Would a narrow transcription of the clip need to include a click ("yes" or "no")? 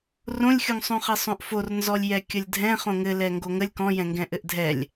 no